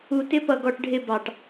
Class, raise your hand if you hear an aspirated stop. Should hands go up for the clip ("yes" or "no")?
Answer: no